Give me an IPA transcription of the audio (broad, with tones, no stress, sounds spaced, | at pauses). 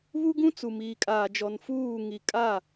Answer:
β u˦ ɡ ũ˦ t͡s u˨ m iː˨ kʼ aː˨ d͡ʒ ɔ˨ n f uː˦˨ ŋ i˨ kʼ a˦˨